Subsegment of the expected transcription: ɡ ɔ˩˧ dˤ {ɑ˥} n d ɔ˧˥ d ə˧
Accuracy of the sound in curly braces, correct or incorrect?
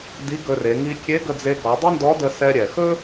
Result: incorrect